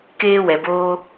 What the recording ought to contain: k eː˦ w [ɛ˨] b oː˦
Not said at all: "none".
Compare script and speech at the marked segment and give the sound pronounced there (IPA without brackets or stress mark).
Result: ɛ˨